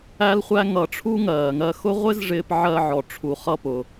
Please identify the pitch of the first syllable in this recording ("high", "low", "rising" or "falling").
high